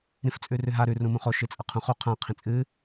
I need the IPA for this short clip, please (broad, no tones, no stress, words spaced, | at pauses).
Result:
ɾĩft͡sʼʉrʉɦa ɾʉ rũmũχo ʃɨt͡sʼɐqʰũχu qʰã qʰĩt͡sʼɨ